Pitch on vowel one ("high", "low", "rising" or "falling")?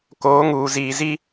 rising